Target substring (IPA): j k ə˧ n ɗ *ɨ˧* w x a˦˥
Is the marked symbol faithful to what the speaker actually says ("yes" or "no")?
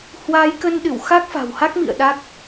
no